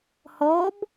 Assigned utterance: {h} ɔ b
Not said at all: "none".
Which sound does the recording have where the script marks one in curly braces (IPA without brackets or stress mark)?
h